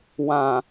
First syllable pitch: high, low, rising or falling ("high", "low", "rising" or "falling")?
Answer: low